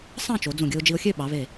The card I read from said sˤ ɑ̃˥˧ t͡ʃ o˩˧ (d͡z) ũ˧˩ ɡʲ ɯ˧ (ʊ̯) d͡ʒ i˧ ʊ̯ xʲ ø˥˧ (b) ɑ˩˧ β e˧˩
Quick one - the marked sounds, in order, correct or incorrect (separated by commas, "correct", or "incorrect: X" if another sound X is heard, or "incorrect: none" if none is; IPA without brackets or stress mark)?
correct, correct, incorrect: ɓ